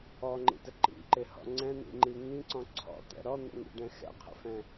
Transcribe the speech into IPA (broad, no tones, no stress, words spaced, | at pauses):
ɔŋ͡ǃḭtə ǃḭǃɪhɔ̰ ŋ͡ǀɛ̃n̪ḭŋ͡ǃi ŋĩǀɔ̃ ǀʰɔ̰t̪ɛ̰ ɾɔn̪ɛ̰ŋḭɖɛ̃ xɛ̰qʰə̰fɛ̃